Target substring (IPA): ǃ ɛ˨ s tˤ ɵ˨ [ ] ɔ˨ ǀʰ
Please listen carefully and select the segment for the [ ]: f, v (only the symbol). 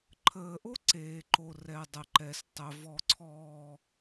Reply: v